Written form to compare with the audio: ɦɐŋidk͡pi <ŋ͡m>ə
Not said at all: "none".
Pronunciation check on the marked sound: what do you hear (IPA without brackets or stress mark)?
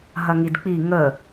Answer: ŋ